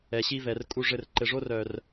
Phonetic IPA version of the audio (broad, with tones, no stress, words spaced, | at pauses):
ɛ˨ɕi˦vɛ˨r kʼu˧ʐɘ˧r ǃɘ˨ʐo˦rœ˨r